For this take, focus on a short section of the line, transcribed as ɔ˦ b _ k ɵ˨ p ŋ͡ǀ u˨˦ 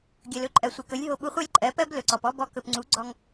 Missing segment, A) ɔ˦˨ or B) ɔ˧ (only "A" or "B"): B